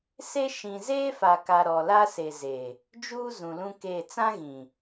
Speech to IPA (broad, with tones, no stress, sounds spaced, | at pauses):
s e˦ ʃ ĩ˨ z eː˦ f a˨ k a˨ ɾ ɔ˨ l a˦ s e˨ z e˨ | d͡ʒ uː˦ z ũ˨ l ũ˦ k e˦˨ t͡s ã˦ ɣ ĩ˨